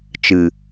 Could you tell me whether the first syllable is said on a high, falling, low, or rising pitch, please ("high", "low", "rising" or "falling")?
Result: low